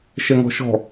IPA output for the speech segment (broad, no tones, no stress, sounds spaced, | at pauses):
ʃ ɛ ŋ ɔ̤ ʃ ɔ̤